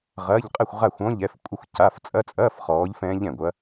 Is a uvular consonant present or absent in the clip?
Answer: present